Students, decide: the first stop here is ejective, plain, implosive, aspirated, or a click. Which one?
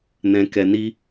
plain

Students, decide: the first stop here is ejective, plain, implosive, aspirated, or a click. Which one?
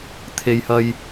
aspirated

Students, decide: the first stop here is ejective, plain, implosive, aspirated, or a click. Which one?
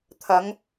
aspirated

